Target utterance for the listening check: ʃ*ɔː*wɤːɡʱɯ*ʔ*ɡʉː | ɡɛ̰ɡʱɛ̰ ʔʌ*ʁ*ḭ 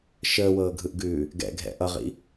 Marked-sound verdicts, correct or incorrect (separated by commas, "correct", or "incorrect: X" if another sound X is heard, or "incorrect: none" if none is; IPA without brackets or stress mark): incorrect: əː, correct, correct